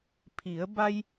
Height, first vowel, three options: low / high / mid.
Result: high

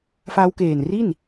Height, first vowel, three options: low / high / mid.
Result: low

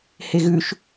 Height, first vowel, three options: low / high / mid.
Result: mid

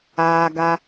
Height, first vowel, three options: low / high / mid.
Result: low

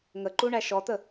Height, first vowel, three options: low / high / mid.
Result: mid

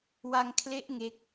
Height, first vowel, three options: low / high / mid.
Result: low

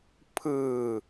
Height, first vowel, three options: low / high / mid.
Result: high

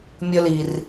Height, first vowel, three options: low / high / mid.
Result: mid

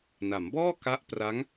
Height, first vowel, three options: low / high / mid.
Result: low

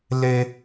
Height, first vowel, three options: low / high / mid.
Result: mid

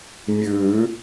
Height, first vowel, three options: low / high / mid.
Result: high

